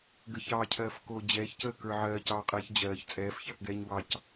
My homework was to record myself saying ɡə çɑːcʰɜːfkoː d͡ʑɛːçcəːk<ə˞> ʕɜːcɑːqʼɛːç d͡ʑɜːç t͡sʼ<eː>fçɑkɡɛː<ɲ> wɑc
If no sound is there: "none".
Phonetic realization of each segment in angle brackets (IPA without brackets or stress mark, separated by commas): ə˞, ɛː, ɲ